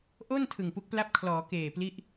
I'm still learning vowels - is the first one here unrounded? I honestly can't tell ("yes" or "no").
no